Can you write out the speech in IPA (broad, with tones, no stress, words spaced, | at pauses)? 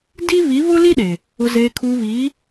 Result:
di˦βi˨˦ βʊ˦li˦ɗe˨ | ʊ˨zeː˨kʰuː˨βiː˨˦